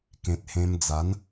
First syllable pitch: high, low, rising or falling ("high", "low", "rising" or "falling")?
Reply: low